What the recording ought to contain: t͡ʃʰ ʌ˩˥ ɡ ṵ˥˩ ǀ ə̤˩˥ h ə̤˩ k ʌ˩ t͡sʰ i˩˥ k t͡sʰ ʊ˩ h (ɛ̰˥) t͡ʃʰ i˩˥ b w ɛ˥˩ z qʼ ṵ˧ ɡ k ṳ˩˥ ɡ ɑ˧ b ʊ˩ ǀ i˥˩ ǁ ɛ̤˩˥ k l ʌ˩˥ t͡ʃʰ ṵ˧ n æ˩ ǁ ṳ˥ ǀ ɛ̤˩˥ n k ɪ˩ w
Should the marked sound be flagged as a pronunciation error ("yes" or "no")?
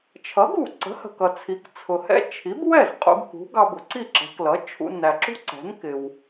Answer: no